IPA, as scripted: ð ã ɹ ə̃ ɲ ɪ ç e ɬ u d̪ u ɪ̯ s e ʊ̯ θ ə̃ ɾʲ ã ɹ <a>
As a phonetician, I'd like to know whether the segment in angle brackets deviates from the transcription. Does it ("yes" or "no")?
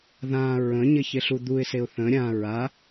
no